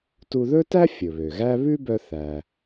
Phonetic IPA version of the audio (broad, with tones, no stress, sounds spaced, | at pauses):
t u˧ ð ɵ˥ t æ˥ fʲ ɵ˩ β ø˩ ɣ æ˥ β ʉ˥ b œ˧ θ æ˩